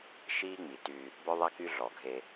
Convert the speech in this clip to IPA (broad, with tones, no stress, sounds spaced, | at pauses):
ʃ iː˦ ŋ͡m i˨ t y˦ | b œ˦ ðˤ ɛ˦ k y˦ ɮ ɔ˨ ɡʱ e˦